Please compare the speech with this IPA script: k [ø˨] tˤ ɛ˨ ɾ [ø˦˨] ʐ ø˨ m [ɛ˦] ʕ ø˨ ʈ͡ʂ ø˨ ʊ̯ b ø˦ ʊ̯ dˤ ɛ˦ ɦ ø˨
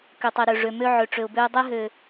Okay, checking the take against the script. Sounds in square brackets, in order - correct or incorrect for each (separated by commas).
correct, incorrect, incorrect